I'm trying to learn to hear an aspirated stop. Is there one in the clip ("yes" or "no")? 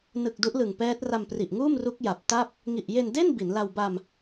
no